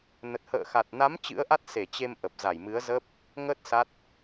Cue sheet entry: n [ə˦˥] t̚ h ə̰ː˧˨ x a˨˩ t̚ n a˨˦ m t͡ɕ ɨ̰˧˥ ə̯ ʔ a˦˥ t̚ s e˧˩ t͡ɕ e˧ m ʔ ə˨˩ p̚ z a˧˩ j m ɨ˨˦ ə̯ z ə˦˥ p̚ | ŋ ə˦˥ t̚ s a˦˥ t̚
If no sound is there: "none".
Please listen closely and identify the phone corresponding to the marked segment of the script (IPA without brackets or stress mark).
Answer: ə˨˩